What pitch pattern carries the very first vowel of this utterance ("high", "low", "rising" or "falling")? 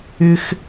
high